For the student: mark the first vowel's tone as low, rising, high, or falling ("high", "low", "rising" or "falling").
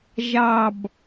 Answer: low